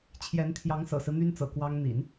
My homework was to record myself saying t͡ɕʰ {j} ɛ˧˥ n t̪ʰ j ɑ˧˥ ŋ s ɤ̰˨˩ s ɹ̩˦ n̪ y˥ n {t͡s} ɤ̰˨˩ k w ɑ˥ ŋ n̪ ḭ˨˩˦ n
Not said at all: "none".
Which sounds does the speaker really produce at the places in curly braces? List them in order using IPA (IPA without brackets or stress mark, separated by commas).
j, t͡s